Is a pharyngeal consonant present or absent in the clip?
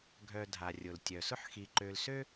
present